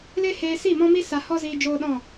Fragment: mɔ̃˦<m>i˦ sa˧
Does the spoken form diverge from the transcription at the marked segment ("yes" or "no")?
no